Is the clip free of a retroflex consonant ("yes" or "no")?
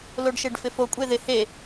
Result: no